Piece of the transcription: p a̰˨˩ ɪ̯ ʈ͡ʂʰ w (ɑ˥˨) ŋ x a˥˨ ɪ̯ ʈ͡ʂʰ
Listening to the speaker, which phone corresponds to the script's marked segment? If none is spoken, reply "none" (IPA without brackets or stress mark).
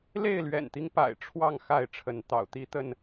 ɑ˥˨